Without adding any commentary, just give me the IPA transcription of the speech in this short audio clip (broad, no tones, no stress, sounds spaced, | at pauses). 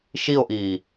ʃ i o̯ ʔ iː